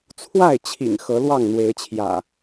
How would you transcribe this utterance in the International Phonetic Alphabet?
t͡sʰwa˥˨ɪ̯t͡ɕʰḭ˨˩ŋ xɤ˨˦lwɑ˥˨ŋn̪we˨˦ɪ̯t͡ɕʰjä̰˨˩

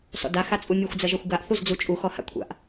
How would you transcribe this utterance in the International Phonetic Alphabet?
sɔ̰da xat͡sʼumʲuxʷ d͡zɜʒɔxʷɡaʔ θuzd͡zut͡ʃʼu xɔha̰kʷʰa̰ʔ

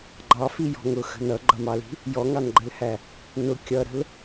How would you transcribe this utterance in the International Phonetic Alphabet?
ɡ͡ǃɑfijɔ̤ ŋʊxə̤ nʌɡ͡ǃʌmɑli̤ | jɔŋɑnɡ͡ǃəlhæ | nʊ kʲʌɾə̤l

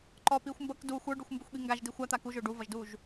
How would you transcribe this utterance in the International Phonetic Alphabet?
ǃɔpiːxʷ mbʌk du xʷə˞ɖuxʷmbuxʷɠi ŋɡaʒdi xʷat̪a kuʒʊː ɖuvʌʒduːʒ

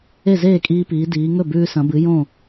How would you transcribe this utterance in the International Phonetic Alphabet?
e˥˩zeː˥˩kʼiː˧piː˩˧ diː˩˧ ŋɵ˥˩bʉː˧sɐ̃˩˧bɨ˩˧ jõ˥˩

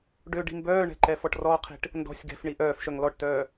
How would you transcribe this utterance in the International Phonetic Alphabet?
ɖø ɖi̤mbœːɳɛ̤ ǃɛfɔʈrɔqʰi̤ʈ | ndɔ̤sʲ ɡɛ̤fɳi ʔœːfʃœŋ lɔʈtœː

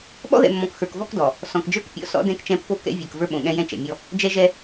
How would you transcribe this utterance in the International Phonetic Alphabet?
ɓɔ̰˦ðɛ̰˨mːɔ̃˨k xə˞˨kvɔ˦kdɔ˨ | sɔ̃˨kd͡ʒə˞˦kpʲɔ̰˦˨ sɔ̰˦dɛ̃˦˨k t͡ʃɛ̃˦pːo˦ kɛ̰˦ vʲə˞˨k və˞˦ɓõ˨ɠɛ̃˦jɛ̃˦ t͡ʃɛ̰˨mʲɔ˦ | d͡ʒɛ˦ʒɛ˦

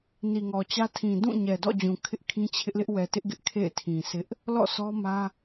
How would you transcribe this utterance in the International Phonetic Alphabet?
ni˨ŋɔ˨t͡ɕä˦ tʰĩ˨ dũ˦˨ ɲɛ˨dɔ̰˦˨d͡ʑũ˨ kʰɪ˦ʔkʰĩ˦t͡ɕʰɪ˦ʔlɪ˦ʔ wɛ˨tɪ˦ʔɡɪ˦ʔ kʰḛ˦˨ɪ̯tʰĩ˨sʰɪ˦ʔ | lɔ̰˦˨sʰɔ˦mä˦

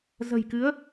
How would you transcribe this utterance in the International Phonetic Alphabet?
zə̤˨˩jkɨ˨˦ə̯

